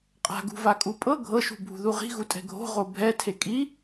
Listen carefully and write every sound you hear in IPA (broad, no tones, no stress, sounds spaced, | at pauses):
qʼ a̤ ɡ ṳ v a kʼ u pʼ ɤ ɡʱ ɤ ʃ ṳ bʱ ṳ ð u ʁ i̤ ɣ u tʼ ɛ̤ ɡʱ o̤ ʁ o bʱ ɛ tʰ e kʼ i